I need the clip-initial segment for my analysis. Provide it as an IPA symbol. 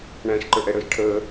ɳ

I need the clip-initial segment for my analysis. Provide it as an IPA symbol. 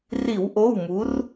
r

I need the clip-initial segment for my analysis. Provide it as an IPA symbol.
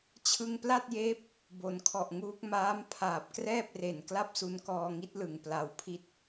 t͡ɕʰ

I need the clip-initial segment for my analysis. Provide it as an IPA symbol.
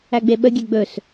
æ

